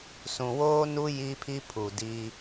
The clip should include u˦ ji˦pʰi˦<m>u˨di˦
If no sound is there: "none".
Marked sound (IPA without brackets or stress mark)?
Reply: pʰ